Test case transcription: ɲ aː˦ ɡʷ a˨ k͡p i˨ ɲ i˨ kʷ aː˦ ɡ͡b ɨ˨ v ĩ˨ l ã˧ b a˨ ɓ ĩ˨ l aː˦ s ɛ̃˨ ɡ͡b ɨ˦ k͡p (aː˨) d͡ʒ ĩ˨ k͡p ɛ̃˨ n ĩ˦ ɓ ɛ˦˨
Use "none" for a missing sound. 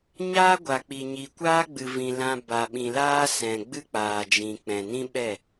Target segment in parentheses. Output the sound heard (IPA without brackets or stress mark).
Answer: aː˨